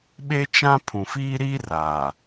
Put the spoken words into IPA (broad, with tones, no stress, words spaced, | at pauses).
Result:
ɓe˦ t͡ʃã˦ pʰũ˨fiː˦ɾiː˦ raː˨